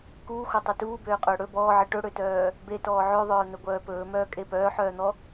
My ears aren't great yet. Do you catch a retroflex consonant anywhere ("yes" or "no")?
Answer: yes